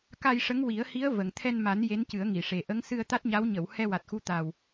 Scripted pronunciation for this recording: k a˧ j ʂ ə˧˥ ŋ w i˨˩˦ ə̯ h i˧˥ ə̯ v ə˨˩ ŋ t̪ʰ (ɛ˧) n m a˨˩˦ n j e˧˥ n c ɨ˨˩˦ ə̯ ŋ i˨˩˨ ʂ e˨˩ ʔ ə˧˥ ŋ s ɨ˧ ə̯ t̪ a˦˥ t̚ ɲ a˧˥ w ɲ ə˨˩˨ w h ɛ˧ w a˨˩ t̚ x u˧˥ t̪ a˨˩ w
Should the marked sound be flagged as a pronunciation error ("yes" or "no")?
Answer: no